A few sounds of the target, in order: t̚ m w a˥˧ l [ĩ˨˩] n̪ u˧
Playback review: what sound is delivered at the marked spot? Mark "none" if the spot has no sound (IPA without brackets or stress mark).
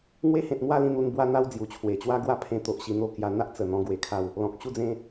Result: ĩ˥˧